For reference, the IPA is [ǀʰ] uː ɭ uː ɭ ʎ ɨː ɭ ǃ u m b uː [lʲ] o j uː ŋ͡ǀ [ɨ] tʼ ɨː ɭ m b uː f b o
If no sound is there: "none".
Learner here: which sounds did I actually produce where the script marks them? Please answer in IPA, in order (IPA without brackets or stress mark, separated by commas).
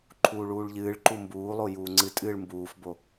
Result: ǃʰ, lˠ, ɨ